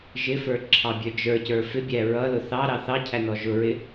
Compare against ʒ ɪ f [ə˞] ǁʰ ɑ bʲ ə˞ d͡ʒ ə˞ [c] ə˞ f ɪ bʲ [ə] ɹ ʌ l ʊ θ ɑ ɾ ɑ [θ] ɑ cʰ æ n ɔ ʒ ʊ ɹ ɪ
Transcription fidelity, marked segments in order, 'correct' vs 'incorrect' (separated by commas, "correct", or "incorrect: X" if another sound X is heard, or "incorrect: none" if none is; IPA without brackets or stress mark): correct, correct, incorrect: æ, correct